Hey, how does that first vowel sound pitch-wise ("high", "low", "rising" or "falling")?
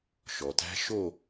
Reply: low